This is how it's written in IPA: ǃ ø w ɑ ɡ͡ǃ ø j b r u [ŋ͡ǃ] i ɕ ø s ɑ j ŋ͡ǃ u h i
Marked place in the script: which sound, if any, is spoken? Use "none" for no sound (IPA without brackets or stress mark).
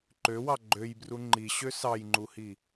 ŋ͡ǃ